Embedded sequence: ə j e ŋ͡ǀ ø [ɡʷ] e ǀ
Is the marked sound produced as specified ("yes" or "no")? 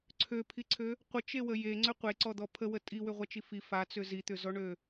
no